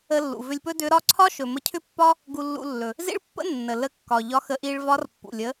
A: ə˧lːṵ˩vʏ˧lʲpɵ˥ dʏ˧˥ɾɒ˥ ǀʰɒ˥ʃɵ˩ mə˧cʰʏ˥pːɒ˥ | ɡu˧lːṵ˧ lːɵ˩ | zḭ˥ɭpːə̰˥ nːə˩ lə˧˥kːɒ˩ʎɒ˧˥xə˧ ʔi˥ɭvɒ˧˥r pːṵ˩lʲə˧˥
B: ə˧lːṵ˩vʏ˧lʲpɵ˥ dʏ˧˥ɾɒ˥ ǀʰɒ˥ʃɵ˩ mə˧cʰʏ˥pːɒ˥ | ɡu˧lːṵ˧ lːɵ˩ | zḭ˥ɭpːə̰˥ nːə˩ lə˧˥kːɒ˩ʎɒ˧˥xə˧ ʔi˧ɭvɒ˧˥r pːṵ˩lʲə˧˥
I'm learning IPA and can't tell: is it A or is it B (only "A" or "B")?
B